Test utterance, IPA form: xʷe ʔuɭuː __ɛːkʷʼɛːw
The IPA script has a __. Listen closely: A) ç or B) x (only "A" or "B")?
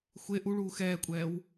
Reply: B